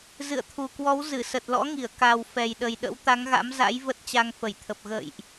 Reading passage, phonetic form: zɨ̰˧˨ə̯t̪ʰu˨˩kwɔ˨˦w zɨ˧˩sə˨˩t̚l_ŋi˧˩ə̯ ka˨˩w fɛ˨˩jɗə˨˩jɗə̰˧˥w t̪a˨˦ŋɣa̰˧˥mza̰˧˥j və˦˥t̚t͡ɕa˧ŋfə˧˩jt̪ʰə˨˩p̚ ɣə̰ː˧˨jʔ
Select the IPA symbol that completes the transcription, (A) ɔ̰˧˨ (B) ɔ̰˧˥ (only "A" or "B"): B